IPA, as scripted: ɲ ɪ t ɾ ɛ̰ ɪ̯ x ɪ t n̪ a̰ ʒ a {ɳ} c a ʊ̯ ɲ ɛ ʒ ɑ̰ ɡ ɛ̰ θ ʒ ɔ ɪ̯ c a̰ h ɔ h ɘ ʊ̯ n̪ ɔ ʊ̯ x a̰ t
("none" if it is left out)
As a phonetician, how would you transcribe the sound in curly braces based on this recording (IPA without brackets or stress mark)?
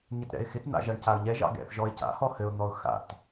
ɳ